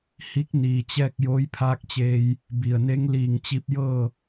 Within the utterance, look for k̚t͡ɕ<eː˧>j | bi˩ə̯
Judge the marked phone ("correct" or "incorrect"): correct